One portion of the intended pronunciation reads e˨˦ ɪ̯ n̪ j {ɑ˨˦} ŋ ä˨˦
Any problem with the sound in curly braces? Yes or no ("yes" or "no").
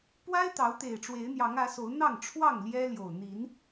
no